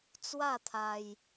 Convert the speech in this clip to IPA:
t͡s w a˥˧ t̪ʰ a˧ j

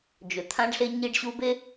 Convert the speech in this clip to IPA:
d͡ʒ ɵ˨ t̪ʰ ã˦ ɖ ɬ e˦ ɲ i˦ ɖ ɕ u˦ b e˦

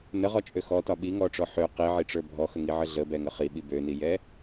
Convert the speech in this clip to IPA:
n ə ʁ ɔ t͡ʃʼ ø x ɔ t ɒ ɓ i ŋ ɔ ʈ͡ʂ ɔ ħ ø q i ʕ i ʈ͡ʂ ə˞ bʱ ɔ x ə ŋ i ʕ ə ɮ ə b ɛ ŋ ə χ i ɓ i b ø n i j ɛ

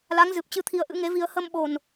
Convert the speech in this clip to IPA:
l a˨˦ ŋ z ɨ˨˩ p̚ t͡ɕ ɨ˧ t̪ʰ i˧ ə̯ ʔ ɨ̰˧˥ ŋ e˨˦ v i˧ ə̯ h ə˧ m ɓ o˨˩ n

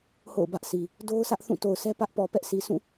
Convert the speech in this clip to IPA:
h o̰˦˨ ʊ̯ b ä˦ ʔ sʰ i˨ | d o˦ ʊ̯ s ä˦ ʔ θ ũ˦˨ t o˨ ʊ̯ sʰ ɛ˦ p ä˦ ʔ p ɔ˨ p ɛ˦ ʔ s i˨ sʰ ũ˦˨

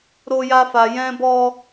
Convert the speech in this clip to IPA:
ɾ o˧ j a˧ f a˨ j ɛ̃˧ b ɔ˧

